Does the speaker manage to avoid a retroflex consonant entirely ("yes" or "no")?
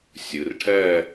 no